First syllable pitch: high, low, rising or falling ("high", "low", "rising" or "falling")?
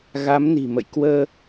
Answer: rising